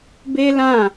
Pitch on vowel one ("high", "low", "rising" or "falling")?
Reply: high